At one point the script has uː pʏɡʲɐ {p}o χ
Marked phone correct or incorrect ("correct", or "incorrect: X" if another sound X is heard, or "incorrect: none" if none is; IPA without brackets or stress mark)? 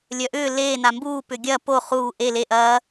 correct